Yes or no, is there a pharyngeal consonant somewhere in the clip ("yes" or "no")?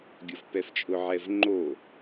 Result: yes